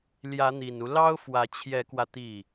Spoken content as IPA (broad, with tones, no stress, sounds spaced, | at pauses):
l j ä˧˥ n̪ i˨˩ n u˦ l ɑ˥ ʊ̯ f w ä˧˥ t͡ɕʰ j ɛ˧˥ k w ä˧ t̪ i˥˩